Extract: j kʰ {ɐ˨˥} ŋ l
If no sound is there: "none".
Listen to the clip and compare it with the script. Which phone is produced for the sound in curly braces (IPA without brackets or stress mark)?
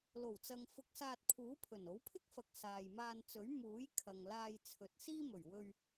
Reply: ɐ˨